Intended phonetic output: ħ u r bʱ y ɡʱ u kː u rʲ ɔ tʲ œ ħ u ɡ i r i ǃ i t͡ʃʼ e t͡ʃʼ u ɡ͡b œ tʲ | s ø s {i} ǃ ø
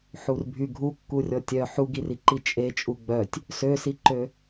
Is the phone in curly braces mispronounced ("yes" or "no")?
no